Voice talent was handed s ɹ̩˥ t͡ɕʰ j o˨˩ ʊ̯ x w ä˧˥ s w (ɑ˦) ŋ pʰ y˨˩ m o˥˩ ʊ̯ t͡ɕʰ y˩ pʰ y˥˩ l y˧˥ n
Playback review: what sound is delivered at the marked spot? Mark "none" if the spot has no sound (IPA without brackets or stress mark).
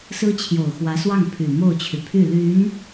ɑ˥˩